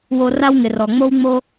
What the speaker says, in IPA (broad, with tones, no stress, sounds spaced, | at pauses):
w o˧ r a˦ w ŋ ɪ˨ r ɔ˨ ŋ͡m o˦ w ŋ͡m o˦